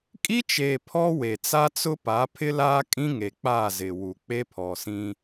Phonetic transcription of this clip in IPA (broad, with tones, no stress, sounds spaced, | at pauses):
kʼ i˦ t͡ʃ eː˨ pʰ ɔ˦ w e˨ t͡s a˦ t͡s ʊ˦ p a˨˦ pʰ ɪ˦ l aː˦ kʼ ĩ˦ ŋ e˨ k͡p aː˦˨ z ɪ˨ w u˨ k͡p e˦ pʰ ɔ˨ s ĩ˦